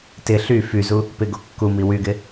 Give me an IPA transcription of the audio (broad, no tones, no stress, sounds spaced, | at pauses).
t ɪ ɬ y f y z u | p ɪ ɡ o kː u m i w y ɡ ɪ